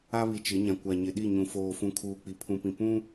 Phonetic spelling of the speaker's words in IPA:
a˦ β i˨ t͡ʃ ɪ˨˦ ɲ ã˨ kʷ a˨ ɲ ɪ˨ ɗ i˦˨ ɲ ũ˨ f oː˨ f ũ˨ kʰ uː˨ k͡p i˨ pʰ ũ˨ p ĩ˨ p ũ˦

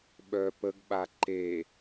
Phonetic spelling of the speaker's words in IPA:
ɓ œ p ə ɡ ɓ a ǃ e

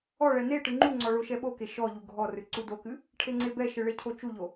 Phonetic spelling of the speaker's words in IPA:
ɔ ɭ ɛ n e ʈ ɨ ŋ͡ǃ u ŋ͡ǀ ɔ ɭ o ʃ ɛ ɓ o k e ʃ ɔ ʎ u ɡʱ ɔ r ɨ ǀ u d o k ɨ | ʈʰ e ŋ͡ǀ e b ɛ ʃ ɨ ɭ e cʰ o t͡ʃ u ʎ o

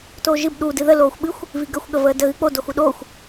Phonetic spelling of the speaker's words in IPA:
t oː ʒ ɨ b ɗ u d ɨ ð ə l oː xʷ ɓ ɨ xʷ | v i ɡ ə xʷ ɠ ə v əː d ə ɣ ɨ k͡p o d o x u ɗ oː xʷ

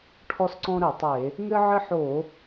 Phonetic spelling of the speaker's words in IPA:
ʈʰ ɔ˦ s ǀ ɔ̃˦ ɾ ɘ˧˩˧ tˤ e˧˩˧ | ŋ ɘ˦ ʕ ɘ˦ ħ o˧˩˧

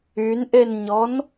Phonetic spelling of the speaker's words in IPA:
y n ʔ e n ɲ ɔ n

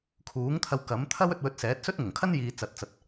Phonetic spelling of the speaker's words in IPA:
kʰ uː˨˥ ŋ t̪ʰ ɐ˧ w k ɐ˨˥ m t̪ʰ ɐ˥ w ɵ˧ t̚ w ɵ˧ t̚ s ɛː˨˥ t̚ s ɵ˥ t̚ ŋ ʊ˨˩ ŋ kʰ ɐ˥ n j iː˨ t͡s ɐ˨˥ t̚ t͡s ɐ˨ t̚

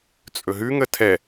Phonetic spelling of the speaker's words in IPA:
t͡sʼ ɵ ɦ ʉ ŋ ə tʰ ɛ

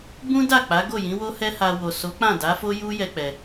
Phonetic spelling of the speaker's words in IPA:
b ũ˦ d a˦˨ k͡p a˨˦ ɡ o˦˨ j ĩ˨˦ w o˦ h ɛ˦ h a˧ w o˨ s o˨˦ k͡p ã˦˨ d a˨˦ f o˦ j u˦ j ɛ˦ k͡p ɛ˧

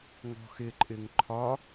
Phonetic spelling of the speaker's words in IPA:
ŋ ɔ̤ x ɪ ǃʼ ɪ ŋ ǃʰ ɒ

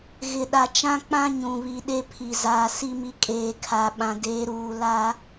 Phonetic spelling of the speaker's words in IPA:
ɣ ɪ˨ ɗ a˨ t͡ʃ ã˦ k͡p ã˦ ɲ ũ˨ β i˨ ɗ e˦ pʰ i˨ z aː˨ s i˦ m i˦ kʼ eː˨ kʰ a˨ ɓ ã˨ d eː˨˦ ɾ uː˨ l a˦

